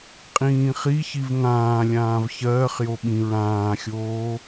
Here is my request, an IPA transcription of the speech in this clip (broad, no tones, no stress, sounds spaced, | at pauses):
qʼ ĩː χ i ç i v ŋ ãː lʲ ãː v ç ɜː χ j o ɓ ĩ ɹ ãː xʲ oː